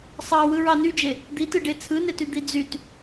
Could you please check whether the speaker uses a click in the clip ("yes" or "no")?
no